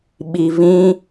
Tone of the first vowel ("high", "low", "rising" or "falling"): low